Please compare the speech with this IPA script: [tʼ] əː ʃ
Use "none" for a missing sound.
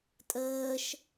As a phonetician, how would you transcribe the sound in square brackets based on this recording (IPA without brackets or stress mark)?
tʼ